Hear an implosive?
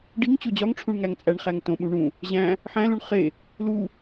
yes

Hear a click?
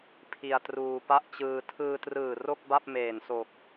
no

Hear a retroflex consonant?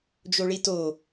yes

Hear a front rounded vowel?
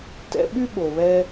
yes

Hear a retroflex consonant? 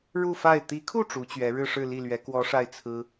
yes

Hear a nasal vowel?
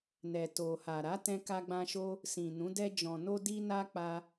yes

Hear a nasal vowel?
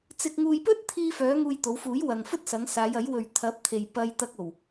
no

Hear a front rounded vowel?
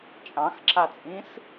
no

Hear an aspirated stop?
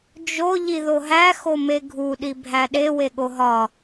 no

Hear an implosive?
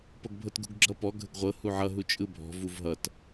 no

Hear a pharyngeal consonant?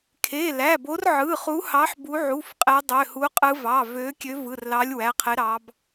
yes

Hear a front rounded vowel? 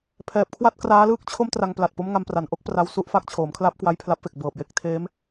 no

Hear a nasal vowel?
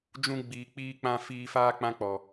yes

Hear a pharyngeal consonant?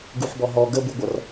yes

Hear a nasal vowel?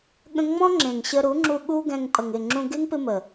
yes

